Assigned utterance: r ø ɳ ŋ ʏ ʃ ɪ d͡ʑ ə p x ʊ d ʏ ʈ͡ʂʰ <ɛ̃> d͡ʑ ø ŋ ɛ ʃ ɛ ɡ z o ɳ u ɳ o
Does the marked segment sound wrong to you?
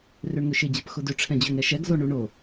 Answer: no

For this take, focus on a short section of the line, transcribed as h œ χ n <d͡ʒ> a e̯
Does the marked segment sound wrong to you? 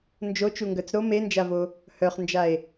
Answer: no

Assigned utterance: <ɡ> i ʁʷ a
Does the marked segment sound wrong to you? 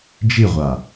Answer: yes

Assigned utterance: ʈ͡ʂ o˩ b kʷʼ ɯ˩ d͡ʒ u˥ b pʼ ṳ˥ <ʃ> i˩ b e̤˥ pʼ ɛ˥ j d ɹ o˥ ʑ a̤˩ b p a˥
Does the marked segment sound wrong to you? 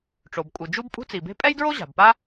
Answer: yes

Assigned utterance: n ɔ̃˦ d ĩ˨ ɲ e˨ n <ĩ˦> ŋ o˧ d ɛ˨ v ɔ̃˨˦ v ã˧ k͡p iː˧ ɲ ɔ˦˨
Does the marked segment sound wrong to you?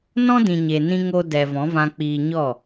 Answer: no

